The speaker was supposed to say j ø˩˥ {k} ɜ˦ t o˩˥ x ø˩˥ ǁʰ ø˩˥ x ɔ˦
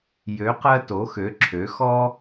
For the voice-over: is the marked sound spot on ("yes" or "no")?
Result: no